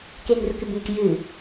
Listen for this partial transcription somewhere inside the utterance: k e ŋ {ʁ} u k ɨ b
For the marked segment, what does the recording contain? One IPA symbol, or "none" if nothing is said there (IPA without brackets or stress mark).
r